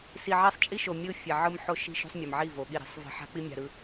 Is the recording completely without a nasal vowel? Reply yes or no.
yes